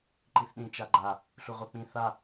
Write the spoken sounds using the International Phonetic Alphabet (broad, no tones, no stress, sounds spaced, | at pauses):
ǃ i θ ɗ ĩ t͡ʃ a ɡ͡ǃ a | ɬ u ʁʷ ɤ k͡p ĩ θ a